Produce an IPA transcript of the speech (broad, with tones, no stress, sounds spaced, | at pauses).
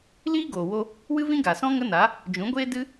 l iː˦ ɡ oː˨ w o˧ | w ɨ˦ v ĩ˦ ɡ a˨ s ɔ̃˦ ŋ ə˦ n a˨˦ | d͡ʒ ũ˨˦ ɡʷ eː˦ d ɨ˦